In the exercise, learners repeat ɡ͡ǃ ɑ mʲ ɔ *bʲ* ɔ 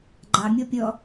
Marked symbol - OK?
no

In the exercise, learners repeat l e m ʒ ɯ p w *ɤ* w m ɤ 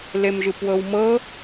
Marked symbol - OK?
yes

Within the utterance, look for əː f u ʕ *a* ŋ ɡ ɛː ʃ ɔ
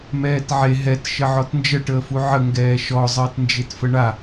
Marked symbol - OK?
no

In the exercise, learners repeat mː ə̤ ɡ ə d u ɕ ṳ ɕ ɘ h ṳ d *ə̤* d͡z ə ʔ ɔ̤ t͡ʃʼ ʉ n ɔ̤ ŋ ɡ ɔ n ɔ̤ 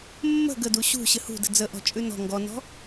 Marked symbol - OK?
yes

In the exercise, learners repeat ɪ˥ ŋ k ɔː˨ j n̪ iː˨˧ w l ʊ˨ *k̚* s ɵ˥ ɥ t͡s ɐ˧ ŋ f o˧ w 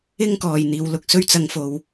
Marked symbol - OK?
yes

